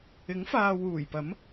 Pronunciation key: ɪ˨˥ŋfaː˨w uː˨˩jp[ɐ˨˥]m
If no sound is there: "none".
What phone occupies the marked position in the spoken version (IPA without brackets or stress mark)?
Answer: ɐ˨˥